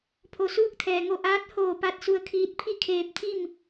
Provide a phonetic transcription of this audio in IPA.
pʰ o˩ s uː˧˥ k̚ t̪ʰ ɛː˩ ŋ o˧˩ ʔ aː˧˥ t̚ h oː˧˩ p a˧ t̚ s u˧ ə̯ kʰ iː˧˥ t̚ pʰ i˥˨ kʰ eː˧ p̚ t̪ʰ i˥˨ m

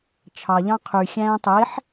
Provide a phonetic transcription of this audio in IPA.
t͡ʃʰ ɑ ʎ ɑ̃ qʰ y xʲ æ̃ː tˤ e ħ

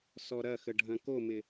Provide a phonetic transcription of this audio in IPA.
s ɔ ɾ ɐ x ə ɖʱ ɐ̃ k o m ɪ

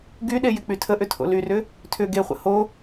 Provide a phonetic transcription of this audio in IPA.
ɡ y ɗ e j ɪ k͡p y tʰ ə ʔ ʏ tʰ o̰ l y r ʏ | tʰ ʏ ɡ e χʷ ə̰ h o

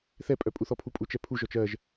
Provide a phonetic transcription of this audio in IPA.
θ ɛ pʼ œ pʼ u θ ɔ pʰ u pʼ u t͡ʃ ɛ pʰ u ʒ ɔ t͡ʃ ɜ ʒ

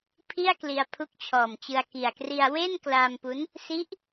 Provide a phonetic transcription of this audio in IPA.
pʰ i˥˩ a̯ k l i˧ a̯ pʰ u˦˥ k̚ t͡ɕʰ ɔː˨˩ m t͡ɕ ɯ˧ a̯ k i˨˩ a̯ k r i˧ a̯ w e˥˩ n k l aː˧ m p u˦˥ n | s i˦˥ ʔ

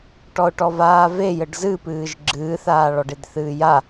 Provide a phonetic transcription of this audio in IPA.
ʈ ɔ ʊ̯ ʈ ɔ v aː v e j ɘ ɖ z ɨ p ɨː ʒ ɡ͡ǁ ɨː θ aː ɭ ɔ ɖ e d θ ɨː j a

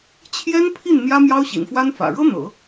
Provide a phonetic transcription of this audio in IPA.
t͡ɕʰ j ɛ˥ n pʰ i˥˩ n n̪ j ä˥ m j ɑ˥ ʊ̯ ɕ ḭ˨˩ n f w a˥ n f ä̰˨˩ ɻ ɤ˥ n̪ ɤ̰˨˩˦

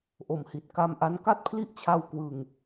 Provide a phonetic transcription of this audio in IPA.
ʔ o˨˩ m h i˨˩ t̚ k a˧ m ʔ a˧ n k a˥˩ t̚ pʰ l i˥˩ ʔ t͡ɕʰ a˧ w k w ɯ˨˩ ŋ

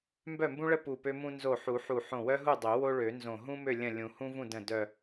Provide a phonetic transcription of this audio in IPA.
m b œ˥˨ m b ũ˥ ɭ ə˥ p u˧˩ p ø˥ m ũ˥ n z o˧˩ ħ u˨˩˦ ħ u˧˩ ħ õ˧˩ w œ˥ ɦ u˥˨ dˤ ø˨˩˦ w o˥ ɭ ø˨˩˦ n z õ˧˩ ɦ ũ˥ m ø˥˨ lʲ ə̃˥˨ lʲ ũ˨˩˦ h ũ˥ v ũ˥˨ d ə̃˥˨ d œ˧˩

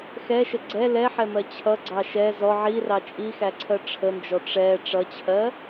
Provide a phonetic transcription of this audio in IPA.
x ɛ ʃ ə ɡ͡ǀ ɛ l ɛ ħ ɛ m ɜ t͡ɕʰ ʌ ɡ͡ǀ ɑ ʃ ɛ z ɔ ʕ i r ɑ t͡ʃʼ i x æ ǀʰ ɜ ʈ͡ʂʰ ə n d͡ʒ ɔ ʈ͡ʂ ɛ ʈ͡ʂ ʌ t͡ɕʰ ɜ

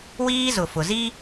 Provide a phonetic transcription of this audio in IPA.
w iː˦ z ʊ˨ f ʊ˨ z i˦

